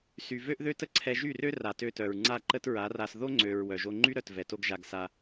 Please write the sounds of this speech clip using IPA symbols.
s y˨ v ø˦ ʔ ð ø˦ t ə˦ ǀʰ ɛ˧ ʒ y˦˨ r ø˦ r a˨ t ø˧ t œ˨ ɹ ŋ͡ǀ a˦˨ ǃ ə˦ t ɹ a˨˦ r a˧ s ð o˦ ŋ͡ǀ ø˨ ɹ w œ˨ ʒ o˧ ŋ͡ǃ y˦ ɾ œ˧ t v ɛ˧ t o˦ ɡ ʒ a˧ ɡ s a˧

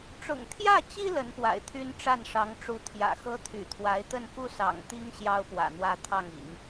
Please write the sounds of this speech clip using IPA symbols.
ʈ͡ʂ ʊ̰˨˩ ŋ t̪ʰ j ä˥˩ t͡ɕ i˥ l ə˧˥ n p w a̰˨˩ ɪ̯ t̪ʰ y˥ n ʈ͡ʂ a˥˩ n ʂ ɑ˧˥ ŋ ʈ͡ʂ u˧˥ t̪ʰ j ä̰˨˩ x ɤ˥ t̪ʰ y̰˨˩ t̪ʰ w a˧˥ ɪ̯ t̪ ə˥˩ n f u˥ s ɑ̰˨˩ ŋ t̪ i˥ ŋ ɕ j ɑ˥ ʊ̯ p w ä̰˨˩ n̪ w ä˥˧ t̪ʰ ɑ˥˩ ŋ ḭ˨˩˦ ŋ

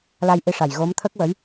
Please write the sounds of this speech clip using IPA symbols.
l a˧ j ʔ i˧˥ ʂ a˨˩ j ɣ o˧˥ m t̪ʰ ə˦˥ k̚ w ə˧˥ j

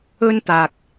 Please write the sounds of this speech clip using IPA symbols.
ɵ˥ n t̪ aː˨ k̚

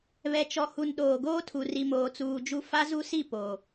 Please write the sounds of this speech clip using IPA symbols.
β ɛ˨ t͡ʃ ɔ˨ h u˨ n ɗ oː˨ ɡ oː˦ tʰ u˨ r i˨ m oː˨ t͡s uː˨ d͡ʒ u˦ f a˦ z u˦ s i˦˨ p o˨

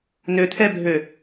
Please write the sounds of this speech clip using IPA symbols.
n ø t̪ʰ ɛ bʱ ø

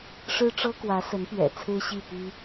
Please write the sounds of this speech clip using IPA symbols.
ʂ ɻ̩˥ ʈ͡ʂ ɤ˥ k w ä˧˥ s ə˧˥ n p ɥ ɛ̰˨˩ t͡sʰ ɹ̩˥ ɕ i˥˩ p i˥

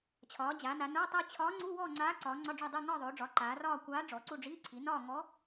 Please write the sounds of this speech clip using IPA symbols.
t͡ɕʰ ɒː˩˧ d͡ʑ aː˩˧ n a˩˧ n oː˧˥˧ tˤ i˥˧ t͡ɕʰ ɒː˧˥ ŋ͡ǀ u˧˥˧ w ɔ˥˧ ŋ͡ǀ aː˧˥ ǀ ɒː˩˧ ŋ͡ǀ ɒ˧˥˧ ɖ͡ʐ ɒ˥˧ dˤ i˥˧ ŋ ɒː˥˧ ðˤ oː˩˧ ɖ͡ʐ ɒ˩˧ ǃ aː˩˧ r ɒː˥˧ kʷ aː˧˥ ɖ͡ʐ ɔ˩˧ ǀ u˥˧ ɖ͡ʐ iː˧˥˧ ǀʰ i˩˧ n ɒː˥˧ ŋ ɔ˧˥

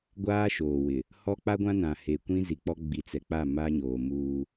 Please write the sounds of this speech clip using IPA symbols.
ɡʷ aː˦ ʃ oː˨ w ɪ˨ | h ɔ˦ k͡p a˦ ɡʷ ã˦ n ã˨ h e˨ kʷ ĩ˦ z i˨ k͡p ɔ˦ ɡ͡b i˨ t͡s ɛ˨ k͡p a˦˨ m a˦ ɲ oː˨ m uː˦

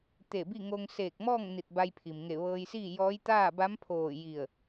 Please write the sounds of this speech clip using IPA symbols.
t̪ e˧˩ b i˥˨ ŋ o˧ ŋ s eː˧˩ k̚ m ɔː˥˨ ŋ n i˧˩ t̚ b a˧ j pʰ i˩ m ŋ e˧˩ ʋ ɤː˧ j s iː˥˨ j ɔː˧˥ j t̪ aː˥˨ b a˧˥ m pʰ oː˧˩ j i˧˩ ə̯

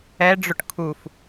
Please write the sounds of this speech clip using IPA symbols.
ɛ ɖ͡ʐ ʊ ʈ kʰ u f

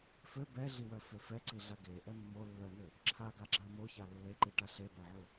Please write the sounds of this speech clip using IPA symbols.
f ø b ɛ ɮ i w œ f ø f ɛ ǀ i ɮ a ɡ e ʔ ɛ mː o lː œ n̪ ø | ǁʰ a ɡ a ɡ͡ǁ a m o ç a lː e ǃ i ʈ a ɬ e b a ʕ u

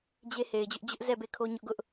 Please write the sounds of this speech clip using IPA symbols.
d͡ʑ e˦ h e˨ ɪ̯ d͡ʑ ʊ˦ ʔ d͡ʑ ʊ˦ ʔ z ɛ˦˨ b e˦˨ kʰ o˦ ɲ ʊ˦ ʔ ɡ ʊ˦ ʔ

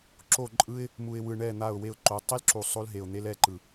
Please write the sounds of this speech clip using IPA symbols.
ǁ o˦˨ ǃʼ ɯ˦ ɪ̯ | m u˨ ɪ̯ w ɯ˨ ɳ ɛ˦˨ n̪ a˦˨ ʊ̯ w e˦ ʊ̯ ǃ o˨˦ tˤ i˦ l ǁ u˨ sˤ o˦ l ɦ e˨ ʊ̯ n̪ e˦ l ɛ˦˨ ǃ ɯ˨

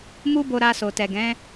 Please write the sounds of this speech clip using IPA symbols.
m u˦ b o˧ ɾ a˧ s o˨ t ɛ˨ ɡ ɛ̃˨˦

